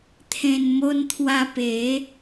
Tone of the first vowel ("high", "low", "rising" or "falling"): low